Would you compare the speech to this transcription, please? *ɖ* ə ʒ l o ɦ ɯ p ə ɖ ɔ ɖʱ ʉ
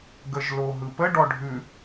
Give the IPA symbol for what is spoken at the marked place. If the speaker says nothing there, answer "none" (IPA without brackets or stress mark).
ɡ